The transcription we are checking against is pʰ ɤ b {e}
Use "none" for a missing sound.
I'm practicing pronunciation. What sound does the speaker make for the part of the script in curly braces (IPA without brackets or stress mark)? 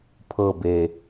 e